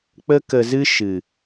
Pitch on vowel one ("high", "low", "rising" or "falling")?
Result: high